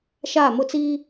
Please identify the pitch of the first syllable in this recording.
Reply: falling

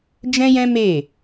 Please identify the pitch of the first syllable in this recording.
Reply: high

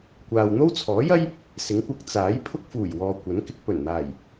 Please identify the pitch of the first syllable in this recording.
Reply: low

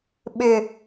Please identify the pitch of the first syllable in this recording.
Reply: high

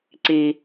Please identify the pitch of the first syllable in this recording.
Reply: low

